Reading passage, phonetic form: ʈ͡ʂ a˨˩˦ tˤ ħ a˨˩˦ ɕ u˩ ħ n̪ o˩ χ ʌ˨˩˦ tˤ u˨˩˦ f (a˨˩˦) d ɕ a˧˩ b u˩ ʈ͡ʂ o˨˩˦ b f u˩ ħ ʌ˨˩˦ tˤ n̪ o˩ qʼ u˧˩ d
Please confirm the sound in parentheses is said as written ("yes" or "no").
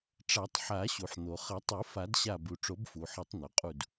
yes